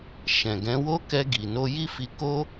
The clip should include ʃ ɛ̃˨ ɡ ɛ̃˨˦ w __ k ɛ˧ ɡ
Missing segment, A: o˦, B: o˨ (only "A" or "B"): A